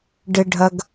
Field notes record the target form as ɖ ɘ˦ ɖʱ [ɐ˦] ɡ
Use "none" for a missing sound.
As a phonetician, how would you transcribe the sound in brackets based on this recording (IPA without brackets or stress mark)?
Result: ɐ˦